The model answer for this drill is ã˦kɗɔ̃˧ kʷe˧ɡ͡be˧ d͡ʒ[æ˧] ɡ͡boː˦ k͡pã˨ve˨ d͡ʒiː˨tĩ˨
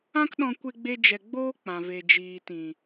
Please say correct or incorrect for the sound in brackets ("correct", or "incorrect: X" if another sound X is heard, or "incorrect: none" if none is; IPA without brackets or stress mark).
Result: incorrect: ɛ˧